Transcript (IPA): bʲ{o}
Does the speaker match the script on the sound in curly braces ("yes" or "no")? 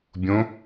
no